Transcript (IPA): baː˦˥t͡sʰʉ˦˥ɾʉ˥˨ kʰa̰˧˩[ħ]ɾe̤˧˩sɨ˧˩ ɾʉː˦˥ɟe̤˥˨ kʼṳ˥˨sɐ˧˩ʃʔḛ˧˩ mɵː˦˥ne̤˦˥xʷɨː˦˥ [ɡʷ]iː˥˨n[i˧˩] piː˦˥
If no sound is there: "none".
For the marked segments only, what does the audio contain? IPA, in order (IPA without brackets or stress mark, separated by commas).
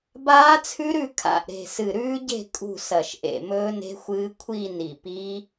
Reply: ʔ, kʷʰ, i˧˩